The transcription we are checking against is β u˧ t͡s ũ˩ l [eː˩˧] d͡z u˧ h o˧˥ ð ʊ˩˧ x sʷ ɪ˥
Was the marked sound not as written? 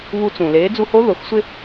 no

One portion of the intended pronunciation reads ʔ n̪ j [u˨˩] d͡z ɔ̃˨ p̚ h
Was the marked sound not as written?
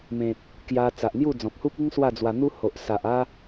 yes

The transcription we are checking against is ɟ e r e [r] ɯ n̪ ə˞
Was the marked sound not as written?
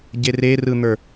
no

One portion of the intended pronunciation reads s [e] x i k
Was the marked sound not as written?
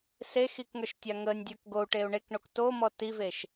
no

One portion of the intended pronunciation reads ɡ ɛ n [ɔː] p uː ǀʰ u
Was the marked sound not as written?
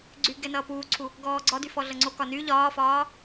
yes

